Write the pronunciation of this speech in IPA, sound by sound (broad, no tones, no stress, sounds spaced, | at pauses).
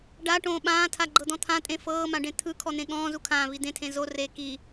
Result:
ɖ a ʈ õː ɓ ãː tʰ a ɡ͡ǃ ɤ d̪ ɔ̃ t̪ʰ ã tʼ ẽ f ɤː m ã ɖ ẽ t̪ʰ ɯ kʰ ɔ n̪ ẽ ɠ ɔ̃ː z u kʰ ãː v i d̪ ẽ tʰ ẽ z o r e k i